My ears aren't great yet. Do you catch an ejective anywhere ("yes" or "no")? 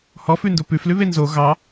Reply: no